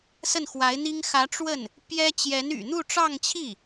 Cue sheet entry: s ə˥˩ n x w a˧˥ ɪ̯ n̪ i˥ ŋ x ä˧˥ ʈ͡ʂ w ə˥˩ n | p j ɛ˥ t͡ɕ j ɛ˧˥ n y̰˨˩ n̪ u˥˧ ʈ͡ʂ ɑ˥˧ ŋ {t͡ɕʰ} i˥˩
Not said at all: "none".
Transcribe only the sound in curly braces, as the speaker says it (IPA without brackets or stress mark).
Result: t͡ɕʰ